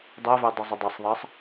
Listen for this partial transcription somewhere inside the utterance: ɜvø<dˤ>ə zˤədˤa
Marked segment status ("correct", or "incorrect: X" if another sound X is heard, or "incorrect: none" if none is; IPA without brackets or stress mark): correct